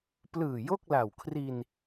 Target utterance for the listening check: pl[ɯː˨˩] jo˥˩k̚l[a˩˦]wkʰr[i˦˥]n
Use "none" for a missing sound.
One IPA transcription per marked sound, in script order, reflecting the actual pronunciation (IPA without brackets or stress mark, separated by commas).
ɯː˨˩, a˨˩, i˧